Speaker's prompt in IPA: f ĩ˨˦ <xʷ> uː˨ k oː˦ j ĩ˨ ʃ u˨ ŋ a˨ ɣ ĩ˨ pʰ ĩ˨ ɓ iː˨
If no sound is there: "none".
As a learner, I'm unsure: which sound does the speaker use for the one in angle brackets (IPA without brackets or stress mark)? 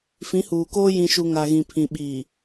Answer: h